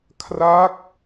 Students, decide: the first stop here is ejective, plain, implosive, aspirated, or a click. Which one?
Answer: aspirated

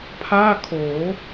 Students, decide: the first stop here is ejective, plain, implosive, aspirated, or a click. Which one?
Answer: aspirated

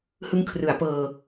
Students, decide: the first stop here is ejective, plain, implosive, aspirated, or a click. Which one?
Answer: aspirated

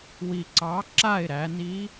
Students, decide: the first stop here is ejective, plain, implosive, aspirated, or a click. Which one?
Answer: click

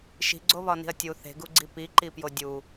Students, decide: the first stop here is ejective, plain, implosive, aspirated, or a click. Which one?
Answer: click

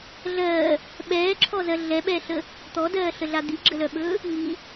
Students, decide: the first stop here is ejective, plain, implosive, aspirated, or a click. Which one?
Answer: implosive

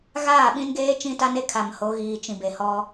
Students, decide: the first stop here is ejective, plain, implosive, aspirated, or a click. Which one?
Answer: implosive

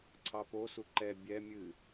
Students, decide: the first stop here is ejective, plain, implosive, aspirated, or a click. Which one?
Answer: click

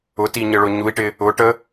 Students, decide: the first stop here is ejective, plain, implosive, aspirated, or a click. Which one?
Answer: plain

